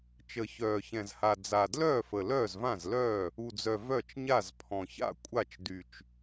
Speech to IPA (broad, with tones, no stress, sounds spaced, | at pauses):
t͡ʃ ə˨˩ ç œː˨˩ ç ɛ̃˨˩ z h a˨˩ d͡z a˨˩ d l œː˥˩ f ə˨˩ l œː˥˩ z v ã˥˩ z l œː˥˩ | u˨˩ d͡z œ˨˩ v œ˥˩ t͡ʃ ɲ a˥˩ z pʰ ɔ̃˨˩ ç a̰˥˩ kʷʼ a˥˩ t͡ʃ d y˨˩ t͡ʃ